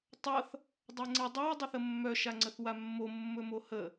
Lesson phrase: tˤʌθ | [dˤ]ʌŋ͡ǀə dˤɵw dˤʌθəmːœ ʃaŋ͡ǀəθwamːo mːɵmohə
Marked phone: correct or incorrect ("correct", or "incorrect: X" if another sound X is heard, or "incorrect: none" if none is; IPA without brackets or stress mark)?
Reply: correct